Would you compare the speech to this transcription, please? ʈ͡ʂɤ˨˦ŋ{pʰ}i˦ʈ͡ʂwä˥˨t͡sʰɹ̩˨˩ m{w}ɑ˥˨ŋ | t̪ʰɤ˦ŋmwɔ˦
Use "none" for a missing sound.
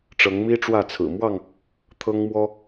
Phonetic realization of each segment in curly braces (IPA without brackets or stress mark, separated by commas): m, w